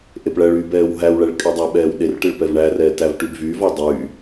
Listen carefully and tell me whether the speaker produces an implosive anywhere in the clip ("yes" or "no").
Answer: yes